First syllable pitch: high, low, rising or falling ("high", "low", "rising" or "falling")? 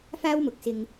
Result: high